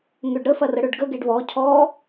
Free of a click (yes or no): yes